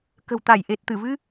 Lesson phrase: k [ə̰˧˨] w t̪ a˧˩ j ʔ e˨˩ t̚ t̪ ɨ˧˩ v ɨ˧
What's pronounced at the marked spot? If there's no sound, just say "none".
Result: ə̤˨˩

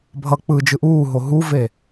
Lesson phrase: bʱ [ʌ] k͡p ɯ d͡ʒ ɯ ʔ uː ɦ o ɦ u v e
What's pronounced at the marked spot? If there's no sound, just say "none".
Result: ʌ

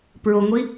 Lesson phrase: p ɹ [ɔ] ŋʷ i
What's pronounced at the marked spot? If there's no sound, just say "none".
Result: o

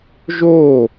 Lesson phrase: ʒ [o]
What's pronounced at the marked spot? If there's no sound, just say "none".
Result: o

